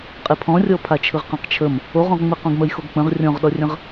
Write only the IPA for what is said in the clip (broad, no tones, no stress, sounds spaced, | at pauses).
qʼ e pʰ ɔ̃ rʲ ɔ pʰ a t͡ʃʰ ɯ ʁ q ã q t͡ʃʰ ə m | o ʁ õ ʁ ŋ͡m ɯ q õ ɡ m ə j x o ɡ k͡p ə̃ ʁ rʲ ɔ̃ ʁ ɗ ɔ rʲ ə̃ ʁ